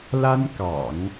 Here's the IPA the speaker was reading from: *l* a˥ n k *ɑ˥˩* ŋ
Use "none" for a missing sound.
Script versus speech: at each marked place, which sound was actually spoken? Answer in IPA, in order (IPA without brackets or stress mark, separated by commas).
l, ɑ̰˨˩˦